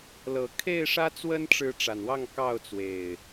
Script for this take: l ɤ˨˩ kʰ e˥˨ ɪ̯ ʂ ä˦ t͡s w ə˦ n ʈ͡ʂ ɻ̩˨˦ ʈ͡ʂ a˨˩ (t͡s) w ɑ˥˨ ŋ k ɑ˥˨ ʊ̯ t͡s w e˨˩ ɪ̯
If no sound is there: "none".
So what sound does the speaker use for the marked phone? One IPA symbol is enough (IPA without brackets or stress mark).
n